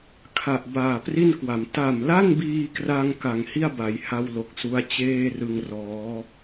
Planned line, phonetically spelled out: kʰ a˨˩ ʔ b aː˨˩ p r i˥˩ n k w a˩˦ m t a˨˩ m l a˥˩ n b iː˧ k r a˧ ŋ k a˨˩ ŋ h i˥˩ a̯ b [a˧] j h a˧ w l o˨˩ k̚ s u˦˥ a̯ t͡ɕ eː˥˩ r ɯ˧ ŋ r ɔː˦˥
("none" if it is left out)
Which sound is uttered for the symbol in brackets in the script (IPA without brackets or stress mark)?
a˩˦